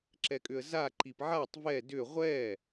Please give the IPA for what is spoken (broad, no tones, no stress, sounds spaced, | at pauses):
ǁ ɛ kʼ ʏ ə̯ z a ǃ i p ʕ a tˤ v ɛ d ʏ ʁʷ ɛ